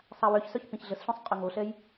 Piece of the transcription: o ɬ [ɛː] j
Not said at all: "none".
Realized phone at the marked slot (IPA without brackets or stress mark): ɛ